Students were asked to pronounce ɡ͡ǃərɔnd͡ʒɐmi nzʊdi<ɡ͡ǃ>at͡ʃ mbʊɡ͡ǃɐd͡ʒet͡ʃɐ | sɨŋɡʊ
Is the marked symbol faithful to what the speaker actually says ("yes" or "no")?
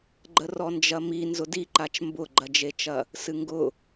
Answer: no